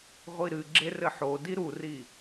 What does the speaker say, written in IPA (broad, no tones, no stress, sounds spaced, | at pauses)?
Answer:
ʁʷ i ɾ ɨ ɡ͡ǁ e r ɘ ħ o d i ɾ u r i